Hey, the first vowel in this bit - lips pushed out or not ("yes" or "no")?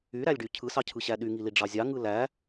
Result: yes